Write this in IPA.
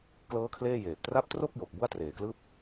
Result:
k l ɤː˦˥ kʰ l eː˥˩ j eː˨˩ p̚ t r a˦˥ p̚ t r o˥˩ k̚ j o˨˩ k̚ b u˥˩ a̯ t r eː˨˩ k l ɯː˥˩ p̚

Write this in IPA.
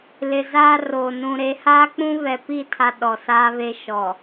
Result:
l ɪ˨ z aː˦ r oː˨ n ũ˨ ɾ e˨˦ h aː˦ k͡p ũ˦ β ɛ˨ p i˦˨ tʰ a˨ ɗ ɔ˨ s aː˦ β e˦ ʃ ɔ˨

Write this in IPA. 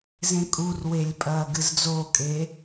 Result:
z ẽ kʼ u r w e lʲ pʼ ɐː ɡ ɨ z d͡z o kʼ eː

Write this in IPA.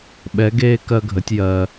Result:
ɓ ɛ˧˥ ɡ eː˥ k ɜ˥ ɡʱ ə˧˥ tʲ j ɜ˧

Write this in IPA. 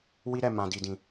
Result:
w i˦ ɾ ɛ˦˨ m ã˨ d i˨ d ĩ˨

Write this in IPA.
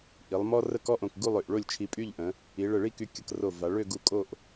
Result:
ʔ i˩˧ lˠ m ɔ˥ r ə˥˧ k ɔ˥ ʔ õ˧˩ k ɡ u˥˧ lˠ ø˧˩ ʔ ɭ o˥˧ lʲ t͡ʃʰ i˧ pʼ y˥˧ ʎ ʔ ə̃˩˧ | i˩˧ ɭ ə˧˩ ɭ i˥˧ k y˧ kʲ ə˧ k r o˧˩ v a˩˧ ɭ ø˥˧ ɡ u˧ kʼ o˥˧ ʔ

